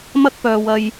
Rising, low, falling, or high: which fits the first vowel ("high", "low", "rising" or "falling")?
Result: high